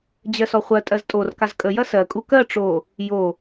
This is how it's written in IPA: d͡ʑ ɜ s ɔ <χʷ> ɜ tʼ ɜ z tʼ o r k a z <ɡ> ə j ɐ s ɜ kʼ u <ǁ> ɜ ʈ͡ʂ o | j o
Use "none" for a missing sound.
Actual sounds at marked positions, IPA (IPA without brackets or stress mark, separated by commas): χʷ, kʼ, k